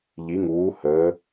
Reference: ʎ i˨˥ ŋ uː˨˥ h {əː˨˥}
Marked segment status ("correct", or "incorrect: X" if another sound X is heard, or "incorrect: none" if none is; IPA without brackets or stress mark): correct